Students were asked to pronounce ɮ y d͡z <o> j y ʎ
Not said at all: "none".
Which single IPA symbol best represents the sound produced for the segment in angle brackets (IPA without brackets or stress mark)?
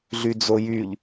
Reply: o